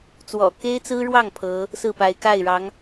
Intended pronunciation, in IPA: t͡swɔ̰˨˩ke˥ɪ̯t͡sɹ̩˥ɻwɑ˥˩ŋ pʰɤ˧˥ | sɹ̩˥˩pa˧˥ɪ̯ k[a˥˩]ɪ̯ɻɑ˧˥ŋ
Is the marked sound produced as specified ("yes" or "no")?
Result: yes